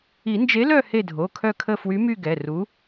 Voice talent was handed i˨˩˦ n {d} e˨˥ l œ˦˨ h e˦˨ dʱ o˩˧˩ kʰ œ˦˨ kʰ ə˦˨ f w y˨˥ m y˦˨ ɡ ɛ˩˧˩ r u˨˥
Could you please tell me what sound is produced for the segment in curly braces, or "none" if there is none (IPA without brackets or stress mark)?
d͡ʒ